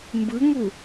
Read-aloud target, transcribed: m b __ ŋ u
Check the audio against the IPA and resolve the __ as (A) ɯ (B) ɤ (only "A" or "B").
A